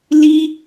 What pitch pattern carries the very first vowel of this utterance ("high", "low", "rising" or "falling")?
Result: high